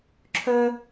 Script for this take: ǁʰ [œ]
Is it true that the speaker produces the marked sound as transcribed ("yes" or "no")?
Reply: yes